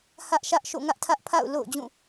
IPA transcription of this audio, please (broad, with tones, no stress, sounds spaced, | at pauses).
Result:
h ä˦ ʔ ʃ ä˦ ʔ ʃ o̰˦˨ ŋ ä˦ ʔ tʰ ä˦ ʔ pʰ a̰˦˨ ʊ̯ l o̰˦˨ ʊ̯ d͡ʑ ũ˦˨